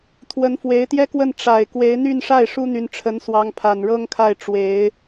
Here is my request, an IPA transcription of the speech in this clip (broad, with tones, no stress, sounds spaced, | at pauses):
t̪ʰ w ə˧˥ n f w e˧˥ ɪ̯ t̪ j ɛ˥ k w ə˥˩ n ʈ͡ʂ a˨˩ ɪ̯ k w e˧˥ ɪ̯ n̪ y˥˧ n ʂ a˥˩ ɪ̯ ʂ u˥ n̪ y˧˥ n ʈ͡ʂʰ ə˧˥ n s w ɑ˧˥ ŋ pʰ a˨˩ n ɻ ɤ˥ ŋ kʰ a˥˩ ɪ̯ ʈ͡ʂ w e˧˥ ɪ̯